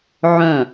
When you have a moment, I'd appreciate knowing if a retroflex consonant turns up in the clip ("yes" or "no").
no